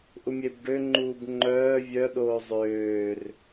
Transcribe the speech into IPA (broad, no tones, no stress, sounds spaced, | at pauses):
ʔ u mʲ e b ɖ ø ŋ͡ǃ uː b ŋ͡ǃ œː vʲ œ ɗ oː zˤ øː r